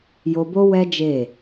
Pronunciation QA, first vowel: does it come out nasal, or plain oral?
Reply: oral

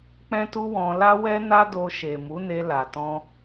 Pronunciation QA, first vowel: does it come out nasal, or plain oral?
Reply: nasal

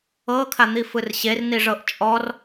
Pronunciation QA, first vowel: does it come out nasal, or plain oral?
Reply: oral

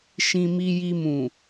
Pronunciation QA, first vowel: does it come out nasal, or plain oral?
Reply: nasal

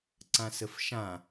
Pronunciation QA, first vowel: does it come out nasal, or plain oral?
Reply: nasal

